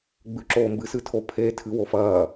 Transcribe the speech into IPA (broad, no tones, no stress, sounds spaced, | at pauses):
ɡ͡b ʉ ǁ oː m b ɨ s ɨ tʰ o pʰ e tʰ ɨ w o f ɐː